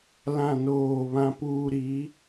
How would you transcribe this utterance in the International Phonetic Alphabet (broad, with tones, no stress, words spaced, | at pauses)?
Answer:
lã˦˨noː˦˨βã˦puː˦ ɾi˨˦